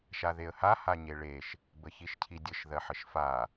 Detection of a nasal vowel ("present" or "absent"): absent